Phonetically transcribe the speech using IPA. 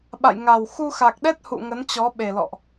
ɓ a̰˧˨ j ŋ a˨˩ w x u˧ x a˨˩ k̚ ɗ ɛ˦˥ t̚ h ṵ˧˨ ŋ ə˨˦ n t͡ɕ ɔ˨˦ ɓ e˨˩ l ɔ̰˧˨ ʔ

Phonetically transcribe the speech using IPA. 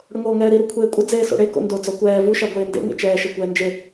ɽ ʊ ŋ oː ŋ ɛː ɾ i ɾ u kʷʰ eː kʷʼ ɪ d͡z eː s o̰ ɽ e k o̰ n d o d͡z ɔ kʷ ɛː v u ʃ a ɡʷ eː n d ḛ ŋ ḛ t͡ʃ ɛː ʃ ɛ kʷ ɛː n d͡ʒ e

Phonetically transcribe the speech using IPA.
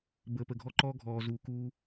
b əː˨ p ə˨ ɡʱ ɔ˦ ǃ ɔː˦ ɡʱ ɔː˨ z uː˨ k uː˦

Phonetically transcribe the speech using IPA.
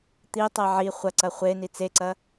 t̪ i tˤ ɛ ʕ i χʷ ɐ ǀ ɐ χʷ e n i t͡s e ǀ ɐ

